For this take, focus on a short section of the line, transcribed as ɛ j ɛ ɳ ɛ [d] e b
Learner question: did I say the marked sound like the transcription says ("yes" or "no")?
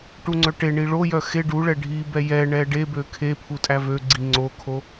no